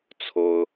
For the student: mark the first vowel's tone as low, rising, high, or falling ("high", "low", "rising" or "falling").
high